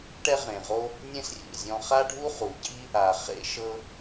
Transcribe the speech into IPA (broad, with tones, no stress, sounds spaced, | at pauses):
ʈ ɛ˦ ʁ ẽ˨ ʁ o˦ | nʲ ẽ˦ s rʲ ḛ˨ zʲ ɔ̃˧ χ a˦ ɖʱ u˦ χ u˨ ɟ i˦ | a˨ χ ḛ˧ ʃ ɤ˦